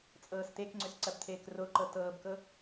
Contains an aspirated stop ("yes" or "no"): yes